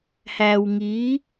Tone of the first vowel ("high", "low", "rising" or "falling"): low